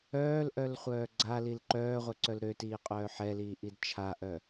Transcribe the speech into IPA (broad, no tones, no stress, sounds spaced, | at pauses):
œː l ʔ œ l χʷ œː ɡ͡ǀ a l i l ǃ œː ʁʷ œ ǀ œ l ɾ ø t iː qʼ œː ħ ɛ l iː ʔ i d t͡ʃʰ a ʔ œ